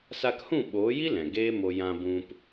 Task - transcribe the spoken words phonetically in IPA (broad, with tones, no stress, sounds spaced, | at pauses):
s a˧ k h ũ˦˨ ɓ oː˨˦ j i˦ l ɛ̃˨ ɡ eː˦ m o˧ j ã˧ b ũ˧ p